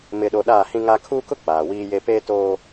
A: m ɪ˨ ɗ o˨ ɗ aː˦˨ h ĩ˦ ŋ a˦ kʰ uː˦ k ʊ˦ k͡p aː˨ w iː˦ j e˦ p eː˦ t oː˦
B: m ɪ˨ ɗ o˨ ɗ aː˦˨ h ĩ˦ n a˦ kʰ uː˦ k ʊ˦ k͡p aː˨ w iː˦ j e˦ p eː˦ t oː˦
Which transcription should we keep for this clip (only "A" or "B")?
A